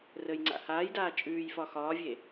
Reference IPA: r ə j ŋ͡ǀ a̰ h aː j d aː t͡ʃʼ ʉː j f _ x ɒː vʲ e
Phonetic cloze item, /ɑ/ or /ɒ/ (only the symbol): ɒ